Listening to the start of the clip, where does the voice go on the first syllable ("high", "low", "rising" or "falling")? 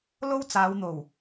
high